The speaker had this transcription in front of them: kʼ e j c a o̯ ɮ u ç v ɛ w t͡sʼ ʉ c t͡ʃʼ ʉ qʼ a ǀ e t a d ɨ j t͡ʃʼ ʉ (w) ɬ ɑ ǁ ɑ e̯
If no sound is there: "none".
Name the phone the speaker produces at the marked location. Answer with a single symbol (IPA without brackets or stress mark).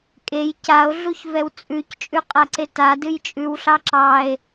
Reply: w